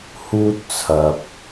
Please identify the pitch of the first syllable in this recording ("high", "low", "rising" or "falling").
high